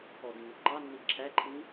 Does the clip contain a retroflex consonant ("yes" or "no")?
no